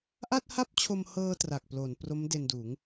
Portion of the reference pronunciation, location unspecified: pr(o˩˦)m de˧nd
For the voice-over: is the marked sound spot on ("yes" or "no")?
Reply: no